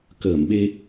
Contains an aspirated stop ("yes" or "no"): no